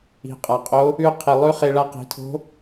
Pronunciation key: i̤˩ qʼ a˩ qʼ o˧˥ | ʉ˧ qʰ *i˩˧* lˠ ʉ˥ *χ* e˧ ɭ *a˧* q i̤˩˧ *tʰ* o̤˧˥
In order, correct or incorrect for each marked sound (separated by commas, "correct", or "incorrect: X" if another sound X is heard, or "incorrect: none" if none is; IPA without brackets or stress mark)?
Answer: incorrect: i˩, correct, correct, correct